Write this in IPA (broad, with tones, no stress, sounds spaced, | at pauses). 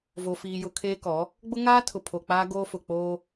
v o˨ f iː˨ j ʊ˨ kʰ eː˦ k ɔ˨˦ | ɡ͡b ʊ˦ ŋ aː˦ tʰ ʊ˨ pʰ o˨ k͡p aː˦ ɡ oː˦ f ʊ˨ k͡p oː˦